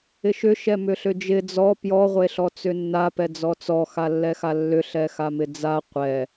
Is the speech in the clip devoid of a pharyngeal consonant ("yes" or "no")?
yes